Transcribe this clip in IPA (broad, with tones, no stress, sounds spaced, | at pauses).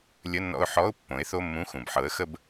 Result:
lʲ ə˧˥˧ nː ɔ̰˧ ʊ̯ ħ ɔ˧˥˧ ʊ̯ pː õ˩˥ ɪ̯ θ o˧˥˧ mː ũ˧˥˧ x ũ˩ b ħ ɤ˩˥ ə̯ x ə˧ b